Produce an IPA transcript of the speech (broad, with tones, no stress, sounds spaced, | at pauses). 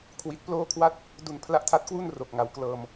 kʰ w i˨˩ t̚ p l oː˦˥ kʰ w a˦˥ t̚ | d u˧ n pʰ l a˦˥ ʔ tʰ a˦˥ t̚ k w u˥˩ n r o˨˩ k̚ ŋ a˩˦ w k l ɤː˧ m